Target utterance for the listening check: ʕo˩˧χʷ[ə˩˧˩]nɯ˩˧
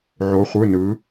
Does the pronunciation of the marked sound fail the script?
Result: yes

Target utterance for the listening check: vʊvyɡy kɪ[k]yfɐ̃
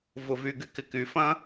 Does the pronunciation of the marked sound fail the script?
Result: no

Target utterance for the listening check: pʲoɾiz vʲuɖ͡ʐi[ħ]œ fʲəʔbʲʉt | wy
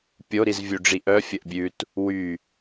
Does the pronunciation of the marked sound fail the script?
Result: yes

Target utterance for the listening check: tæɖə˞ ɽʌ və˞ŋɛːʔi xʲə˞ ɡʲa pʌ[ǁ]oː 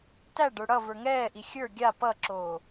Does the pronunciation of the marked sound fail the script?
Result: no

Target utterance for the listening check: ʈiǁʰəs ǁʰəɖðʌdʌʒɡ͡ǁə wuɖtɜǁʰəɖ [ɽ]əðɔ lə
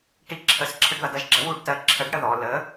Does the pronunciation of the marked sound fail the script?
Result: no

